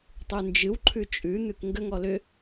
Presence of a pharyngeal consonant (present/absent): absent